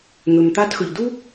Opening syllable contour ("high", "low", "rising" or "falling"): low